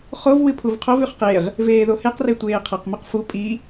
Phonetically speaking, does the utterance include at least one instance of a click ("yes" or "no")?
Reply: no